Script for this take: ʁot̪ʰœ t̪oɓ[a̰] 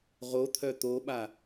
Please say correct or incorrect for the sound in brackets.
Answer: incorrect